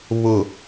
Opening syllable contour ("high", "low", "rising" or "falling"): low